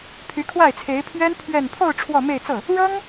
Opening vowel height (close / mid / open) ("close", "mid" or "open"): close